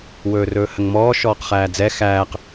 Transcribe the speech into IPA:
w ɵː r ɵː h ə ŋ m ɔː ʃ ɔː q χ æː d͡z ɛ x æː q

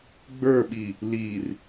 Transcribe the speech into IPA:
ɡ͡b ə˞ ɓ i | l i r

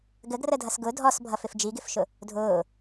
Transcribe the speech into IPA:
ɡ ə ɡ r ə dʱ ʌ s ɡ ʊ dʱ ɔ s bʱ ʌ f ɪ f d͡ʒ i ɡ ɪ f ʃ ʊ | dʱ ʊː

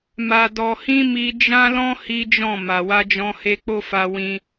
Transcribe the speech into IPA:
m a˨ d ɔ˨ h ĩ˧ m i˧ d͡ʒ ã˦ l ɔ̃˦ h i˦ d͡ʒ ɔ̃˦˨ m a˨ w a˧ d͡ʒ ɔ̃˧ h e˧ k͡p o˦ f a˧ w ĩ˦

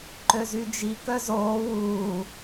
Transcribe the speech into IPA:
ǃ ø z y d͡ʒ i k œ z oː w uː

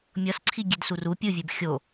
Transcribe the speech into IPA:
mʲ ʌ s ǀʰ i ɡʲ e d s u r u pʲ ɯ vʲ e b xʲ o

